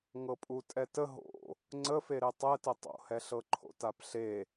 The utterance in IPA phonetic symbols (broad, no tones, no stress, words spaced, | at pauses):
ŋɤpʼutʼɛtə ɦo̰ | ŋ͡ǀəfeɾe tˤɛtə tˤo̰hɛɬɤ ǃʰo̰tapɬe